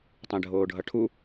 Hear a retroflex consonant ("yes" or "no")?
yes